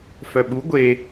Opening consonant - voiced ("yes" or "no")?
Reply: no